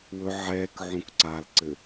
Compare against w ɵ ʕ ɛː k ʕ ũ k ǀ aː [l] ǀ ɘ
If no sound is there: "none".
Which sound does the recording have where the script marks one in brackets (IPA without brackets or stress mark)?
l